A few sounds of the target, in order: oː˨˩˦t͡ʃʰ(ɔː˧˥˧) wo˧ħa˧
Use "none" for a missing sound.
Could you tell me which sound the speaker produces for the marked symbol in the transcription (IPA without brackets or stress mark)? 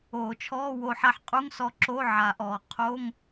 ɔː˧˥˧